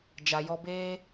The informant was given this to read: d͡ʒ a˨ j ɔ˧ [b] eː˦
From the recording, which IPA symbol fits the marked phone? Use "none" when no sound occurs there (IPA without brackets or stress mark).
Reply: b